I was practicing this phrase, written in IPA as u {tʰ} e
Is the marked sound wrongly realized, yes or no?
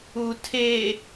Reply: no